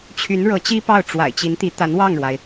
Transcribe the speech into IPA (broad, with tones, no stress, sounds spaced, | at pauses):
t͡ɕʰ y˧˥ n ɻ ɤ˧˥ t͡ɕ i˥ p ɑ˥˩ ʊ̯ ʈ͡ʂ w a̰˨˩ ɪ̯ t͡ɕ i˧˥ n t̪ i˧˥ t̪ a˧˥ n w ɑ˥˩ ŋ ɻ w a˩ ɪ̯